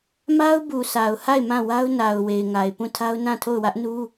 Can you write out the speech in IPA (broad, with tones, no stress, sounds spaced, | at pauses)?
m a˦ ʊ̯ b u˨ sʰ a˨ ʊ̯ h a˦˨ ɪ̯ m ã˦˨ w a˦ ʊ̯ n a˨ ʊ̯ w e˨ ɪ̯ ŋ a˨ ɪ̯ p ũ˦˨ tʰ a˦ ʊ̯ n ã˦˨ tʰ o˦˨ ʊ̯ w ä˦ ʔ n u˦